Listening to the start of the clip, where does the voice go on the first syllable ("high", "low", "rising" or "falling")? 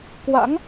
rising